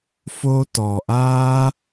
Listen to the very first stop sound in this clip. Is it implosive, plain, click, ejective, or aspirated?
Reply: plain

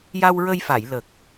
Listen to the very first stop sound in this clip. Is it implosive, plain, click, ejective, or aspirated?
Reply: plain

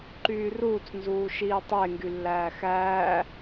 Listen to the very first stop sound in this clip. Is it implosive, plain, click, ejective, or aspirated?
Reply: click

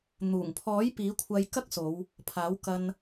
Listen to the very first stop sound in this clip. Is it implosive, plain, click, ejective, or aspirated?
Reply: aspirated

